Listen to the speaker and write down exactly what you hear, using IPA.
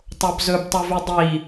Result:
tˤ o b z ɵ b tˤ u v ʉ dˤ i

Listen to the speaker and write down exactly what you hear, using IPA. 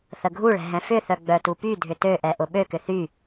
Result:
θ ə ɡʱ u ɭ ɛ̤ ɦ ɛ̃ f ʏ θ œ ɡ͡b œ t u p y dʱ ʏ t ø ʔ ɛ ʔ ʊ ɓ ø k ʏ θ y

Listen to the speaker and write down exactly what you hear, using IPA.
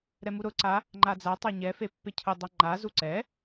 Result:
ɾ ɛ m u ɾ ʊ ǀ a | ŋ͡ǃ a d͡z a tˤ a ɲ ɛ f e pː e cʰ ʊ dˤ a ŋ͡ǃ a z u ǀ ɛ

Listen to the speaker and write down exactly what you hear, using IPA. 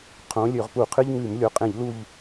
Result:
qʰ õ˨˦ lʲ ø˧˩˧ ʁ p u˧˩˧ qʰ ɨ˦ ʎ ŋ ʉ˧˩˧ m lʲ o˨˦ qʼ ẽ˧˩˧ ʎ l u˦˨ ʎ

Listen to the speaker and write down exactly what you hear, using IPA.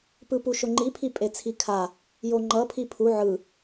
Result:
p ɯ p u ʃ o ŋ͡ǃ i pʰ i pʼ e t͡sʰ i kʰ a | j o ŋ͡ǃ ʌ pʰ i pʰ u ʕ ɯ

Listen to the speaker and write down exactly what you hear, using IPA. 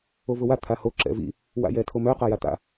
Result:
o v ʊ w a t̪ʰ a h o ǁ ɛ̰ v ḭ | w a̰ j ɛ tʰ o m œ q a j a t̪ a̰

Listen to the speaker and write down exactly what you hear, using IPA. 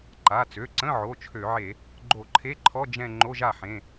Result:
ǃ a˩˧˩ t͡s ø˩˧˩ ǀ ə̃˧˥˧ ʕ o˩˧˩ t͡ʃʰ ø˧˩˧ ʕ e˧˩˧ | ɡ͡ǃ o˧˩˧ ǃʰ e˧˥˧ ǃʰ ɔ˧˥˧ d͡ʒ ɛ̃˥˧ ŋ͡ǃ o˧˥˧ ʒ a˥˩ ħ ẽ˩˧˩

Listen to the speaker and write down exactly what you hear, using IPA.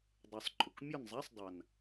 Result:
dˤ ʉ˨˩ sˤ ǃʼ ʊ˨˩ k mʲ ɔ˦˨ n zˤ a˧˥˧ sˤ dˤ a˨˩ n

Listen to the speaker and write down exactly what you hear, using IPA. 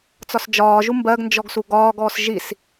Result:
t͡s ɒ s d͡ʒ ɒː ʒ u m b ɜ ɡ n d͡ʒ ɔ ɡ s u ɡ ɒː ɡ ɔː s ʒ i s

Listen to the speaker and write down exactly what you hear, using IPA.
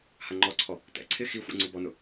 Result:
h a ŋ͡ǃ ɔ ǀʰ ɔ | t ɛ̰ ǀʰ ɪ x i xʷ ɛ̰ ŋ͡ǀ u b ɔ n ʊ

